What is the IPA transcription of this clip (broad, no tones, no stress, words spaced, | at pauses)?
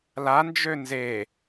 land͡ʒø nze